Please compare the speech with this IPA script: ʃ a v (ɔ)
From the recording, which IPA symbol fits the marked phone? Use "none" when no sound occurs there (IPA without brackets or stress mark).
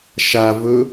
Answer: ɵ